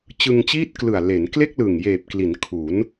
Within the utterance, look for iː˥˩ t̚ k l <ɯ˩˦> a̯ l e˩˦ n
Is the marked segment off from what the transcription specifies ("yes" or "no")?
yes